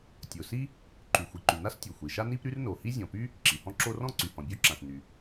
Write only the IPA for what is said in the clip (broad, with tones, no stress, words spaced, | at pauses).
tʲo˩si˥ | ǃy˩xʷi˩ǃy˩ na˥stʲo˩xʷi˩ʃa˥ ni˥pɾy˥rno˩hi˥ zʲɔ̃˩py˥ | ǁi˩hɔ̃˥ǁo˥ rɔ̃˥ ǀy˩hɔ̃˩bʲo˥ǁã˩s ny˩